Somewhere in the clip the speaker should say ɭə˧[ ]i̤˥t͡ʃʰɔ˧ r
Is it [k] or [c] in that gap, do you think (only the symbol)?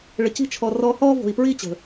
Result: c